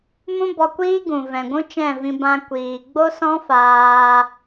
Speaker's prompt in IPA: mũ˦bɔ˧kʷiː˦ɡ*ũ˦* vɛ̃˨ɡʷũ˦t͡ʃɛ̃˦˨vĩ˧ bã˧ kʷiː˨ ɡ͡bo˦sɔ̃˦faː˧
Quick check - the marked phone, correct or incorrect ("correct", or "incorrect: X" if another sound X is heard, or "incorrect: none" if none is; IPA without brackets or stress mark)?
incorrect: ũ˨